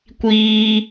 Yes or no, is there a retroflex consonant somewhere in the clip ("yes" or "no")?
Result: no